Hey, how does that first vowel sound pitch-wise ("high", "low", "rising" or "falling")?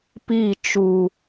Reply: falling